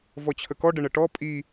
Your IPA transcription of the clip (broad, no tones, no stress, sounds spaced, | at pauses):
v ɔ t͡ɕʰ ə k ɔ ɖ ə ɳ ə ʈ ɔ pʼ i